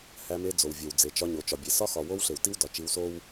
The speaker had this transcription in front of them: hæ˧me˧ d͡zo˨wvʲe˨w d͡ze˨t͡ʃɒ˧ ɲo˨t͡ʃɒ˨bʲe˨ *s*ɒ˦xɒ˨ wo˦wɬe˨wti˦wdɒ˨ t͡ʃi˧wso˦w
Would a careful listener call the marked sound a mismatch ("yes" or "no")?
no